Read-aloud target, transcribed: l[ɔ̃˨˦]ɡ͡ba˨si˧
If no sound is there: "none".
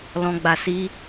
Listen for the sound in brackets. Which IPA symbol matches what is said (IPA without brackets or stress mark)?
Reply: ɔ̃˨